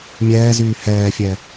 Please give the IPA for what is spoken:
mʲɛːzyː hɛːfʲɛ

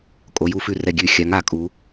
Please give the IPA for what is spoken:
kʼo˨˦j u˧˩˧fʉ˧˩ rɛ˧˩ɡʲʉ˧˩˧xʲa˨˦ŋ a˨˦kʼu˨˦

